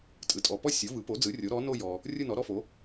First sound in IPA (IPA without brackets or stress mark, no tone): tʼ